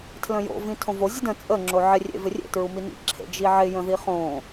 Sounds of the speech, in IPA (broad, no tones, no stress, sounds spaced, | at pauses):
tʰ l ə̃ j o̰ v ĩ tʰ õ v o zʲ ə d ə̃ t͡sʼ ə ŋ͡ǁ o ʕ ɪ rʲ ḛ v ɪ rʲ ḛ t ɹ u m i n ḭ ǁʰ ḛ d͡ʒ i ʕ ɪ j ə̃ ð i χ õ